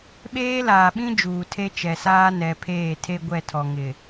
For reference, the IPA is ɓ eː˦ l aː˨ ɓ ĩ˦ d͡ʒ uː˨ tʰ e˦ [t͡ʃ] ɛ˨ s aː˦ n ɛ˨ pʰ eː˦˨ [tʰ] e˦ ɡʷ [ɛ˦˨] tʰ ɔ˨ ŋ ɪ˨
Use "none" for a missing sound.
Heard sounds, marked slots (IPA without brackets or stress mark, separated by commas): t͡ʃ, tʰ, ɛ˦˨